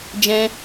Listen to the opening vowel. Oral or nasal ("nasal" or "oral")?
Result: nasal